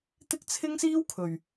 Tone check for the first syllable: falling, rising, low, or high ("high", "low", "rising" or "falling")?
high